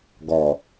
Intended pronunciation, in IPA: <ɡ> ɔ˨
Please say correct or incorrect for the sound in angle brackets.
correct